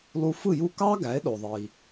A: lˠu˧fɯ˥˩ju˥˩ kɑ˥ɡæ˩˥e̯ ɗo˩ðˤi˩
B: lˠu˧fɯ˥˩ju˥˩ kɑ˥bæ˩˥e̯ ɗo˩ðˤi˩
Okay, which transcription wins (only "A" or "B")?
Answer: A